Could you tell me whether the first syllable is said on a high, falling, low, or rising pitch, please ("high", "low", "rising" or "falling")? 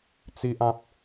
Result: high